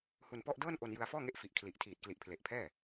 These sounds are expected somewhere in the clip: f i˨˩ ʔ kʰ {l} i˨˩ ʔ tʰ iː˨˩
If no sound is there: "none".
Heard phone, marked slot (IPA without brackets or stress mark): l